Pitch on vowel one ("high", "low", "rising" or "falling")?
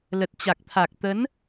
low